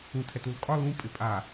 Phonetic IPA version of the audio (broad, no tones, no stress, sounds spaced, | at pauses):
ũ tʰ ɛ t u l kʼ ɒ l ũ pʼ ɪ pʼ a